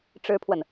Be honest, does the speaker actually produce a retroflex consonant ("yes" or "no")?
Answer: yes